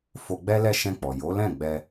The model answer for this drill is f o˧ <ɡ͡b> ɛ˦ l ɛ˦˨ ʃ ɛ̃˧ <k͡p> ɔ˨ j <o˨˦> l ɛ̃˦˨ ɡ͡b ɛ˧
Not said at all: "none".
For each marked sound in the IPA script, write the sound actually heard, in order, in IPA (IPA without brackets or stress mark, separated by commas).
ɡ͡b, k͡p, o˨˦